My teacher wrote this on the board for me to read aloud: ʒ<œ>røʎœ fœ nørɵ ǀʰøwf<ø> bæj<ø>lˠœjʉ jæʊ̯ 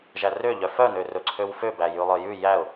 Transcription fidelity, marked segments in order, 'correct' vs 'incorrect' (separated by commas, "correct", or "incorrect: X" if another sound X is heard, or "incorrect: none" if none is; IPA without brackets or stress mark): incorrect: æ, correct, incorrect: ʉ